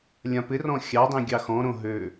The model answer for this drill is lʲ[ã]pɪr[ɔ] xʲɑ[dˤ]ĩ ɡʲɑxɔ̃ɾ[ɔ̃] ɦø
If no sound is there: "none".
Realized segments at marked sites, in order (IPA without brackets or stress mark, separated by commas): ã, ɔ̃, dˤ, õ